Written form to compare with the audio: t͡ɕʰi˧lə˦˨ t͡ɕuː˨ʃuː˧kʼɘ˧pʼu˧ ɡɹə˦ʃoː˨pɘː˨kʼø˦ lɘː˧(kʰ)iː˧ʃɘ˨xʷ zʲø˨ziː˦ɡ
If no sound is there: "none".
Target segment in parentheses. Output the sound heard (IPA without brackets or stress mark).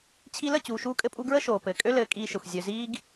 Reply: kʼ